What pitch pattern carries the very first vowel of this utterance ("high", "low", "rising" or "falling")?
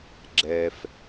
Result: low